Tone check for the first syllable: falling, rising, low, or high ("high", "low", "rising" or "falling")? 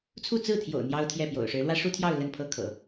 falling